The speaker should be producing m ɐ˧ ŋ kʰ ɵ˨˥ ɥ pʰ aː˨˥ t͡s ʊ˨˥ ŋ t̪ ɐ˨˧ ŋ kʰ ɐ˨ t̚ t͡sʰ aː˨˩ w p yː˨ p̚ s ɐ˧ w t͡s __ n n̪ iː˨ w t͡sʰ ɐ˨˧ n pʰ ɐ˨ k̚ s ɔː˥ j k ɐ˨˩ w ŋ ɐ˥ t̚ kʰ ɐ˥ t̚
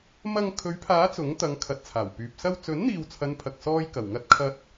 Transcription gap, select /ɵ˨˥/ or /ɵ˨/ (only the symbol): ɵ˨˥